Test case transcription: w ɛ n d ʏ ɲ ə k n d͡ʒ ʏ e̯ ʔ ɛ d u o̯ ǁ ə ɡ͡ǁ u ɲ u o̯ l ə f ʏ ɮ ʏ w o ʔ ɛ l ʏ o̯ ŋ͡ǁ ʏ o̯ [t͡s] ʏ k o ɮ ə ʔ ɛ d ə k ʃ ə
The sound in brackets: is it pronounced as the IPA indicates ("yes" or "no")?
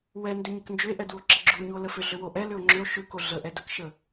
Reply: no